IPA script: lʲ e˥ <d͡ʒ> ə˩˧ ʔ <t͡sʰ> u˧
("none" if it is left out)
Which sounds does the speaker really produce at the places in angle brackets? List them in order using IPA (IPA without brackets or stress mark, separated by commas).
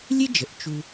d͡ʒ, t͡ʃ